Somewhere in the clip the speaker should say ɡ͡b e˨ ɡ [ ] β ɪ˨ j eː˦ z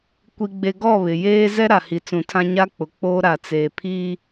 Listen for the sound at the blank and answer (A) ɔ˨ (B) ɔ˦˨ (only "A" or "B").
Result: B